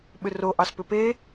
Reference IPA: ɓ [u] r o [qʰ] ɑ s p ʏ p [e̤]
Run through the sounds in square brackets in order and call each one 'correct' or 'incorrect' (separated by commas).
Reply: incorrect, incorrect, incorrect